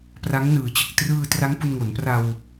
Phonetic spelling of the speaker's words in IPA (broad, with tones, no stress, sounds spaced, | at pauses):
p r a˦˥ ŋ n ɯː˨˩ t͡ɕ ɯ˨˩ k̚ t r ɯː˧ t r a˦˥ ŋ p u˧ n ŋ o˩˦ n p r a˧ w